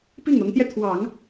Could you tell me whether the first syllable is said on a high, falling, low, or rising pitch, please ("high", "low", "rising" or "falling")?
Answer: falling